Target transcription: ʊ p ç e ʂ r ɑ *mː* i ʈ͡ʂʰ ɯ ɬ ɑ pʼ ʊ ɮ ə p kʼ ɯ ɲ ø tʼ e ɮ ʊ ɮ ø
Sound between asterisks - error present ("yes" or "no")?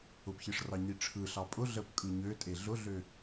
yes